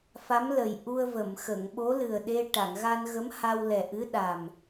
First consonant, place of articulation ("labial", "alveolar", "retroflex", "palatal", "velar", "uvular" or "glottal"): labial